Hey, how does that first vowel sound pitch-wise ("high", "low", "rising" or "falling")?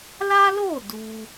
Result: high